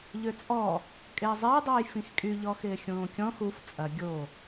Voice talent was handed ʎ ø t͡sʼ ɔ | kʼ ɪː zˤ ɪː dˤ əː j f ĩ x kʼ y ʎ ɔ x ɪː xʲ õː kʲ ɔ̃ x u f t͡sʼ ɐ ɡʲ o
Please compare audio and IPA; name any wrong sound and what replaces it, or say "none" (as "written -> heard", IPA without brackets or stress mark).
none